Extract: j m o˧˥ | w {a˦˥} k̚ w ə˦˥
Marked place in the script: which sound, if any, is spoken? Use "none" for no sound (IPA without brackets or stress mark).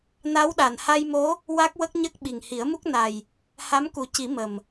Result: a˦˥